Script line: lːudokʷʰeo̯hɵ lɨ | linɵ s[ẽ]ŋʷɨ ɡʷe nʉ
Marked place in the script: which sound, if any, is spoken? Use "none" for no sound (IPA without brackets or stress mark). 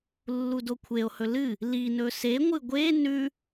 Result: e